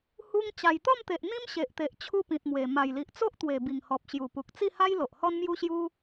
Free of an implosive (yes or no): yes